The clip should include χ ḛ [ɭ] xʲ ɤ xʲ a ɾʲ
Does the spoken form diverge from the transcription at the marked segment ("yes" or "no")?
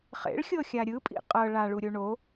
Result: no